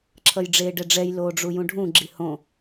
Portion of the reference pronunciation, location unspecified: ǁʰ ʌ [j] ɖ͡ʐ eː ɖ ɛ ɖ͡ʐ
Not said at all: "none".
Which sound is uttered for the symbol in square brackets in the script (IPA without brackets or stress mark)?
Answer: j